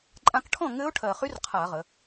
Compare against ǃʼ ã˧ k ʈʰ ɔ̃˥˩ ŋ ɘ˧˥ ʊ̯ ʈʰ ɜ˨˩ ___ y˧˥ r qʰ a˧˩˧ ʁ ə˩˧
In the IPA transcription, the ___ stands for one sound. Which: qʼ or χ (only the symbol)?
χ